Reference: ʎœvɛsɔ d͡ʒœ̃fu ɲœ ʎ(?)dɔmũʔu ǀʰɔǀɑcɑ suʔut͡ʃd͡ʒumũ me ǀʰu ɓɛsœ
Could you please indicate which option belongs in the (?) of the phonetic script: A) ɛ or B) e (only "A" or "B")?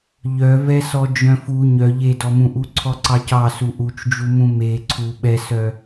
B